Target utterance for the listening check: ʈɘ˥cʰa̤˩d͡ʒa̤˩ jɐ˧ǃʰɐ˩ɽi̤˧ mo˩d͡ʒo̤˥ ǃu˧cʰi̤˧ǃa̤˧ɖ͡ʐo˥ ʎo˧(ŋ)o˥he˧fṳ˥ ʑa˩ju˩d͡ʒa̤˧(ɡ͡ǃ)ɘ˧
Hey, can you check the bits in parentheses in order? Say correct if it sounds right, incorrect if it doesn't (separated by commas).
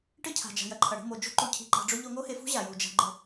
correct, correct